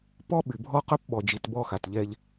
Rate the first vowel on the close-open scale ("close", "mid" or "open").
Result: mid